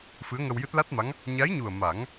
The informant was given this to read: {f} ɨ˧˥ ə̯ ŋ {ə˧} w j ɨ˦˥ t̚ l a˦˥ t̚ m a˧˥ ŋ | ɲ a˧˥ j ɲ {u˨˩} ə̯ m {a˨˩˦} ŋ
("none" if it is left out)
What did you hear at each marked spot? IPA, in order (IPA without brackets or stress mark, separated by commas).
f, ə˧, u˨˩, a˨˩˦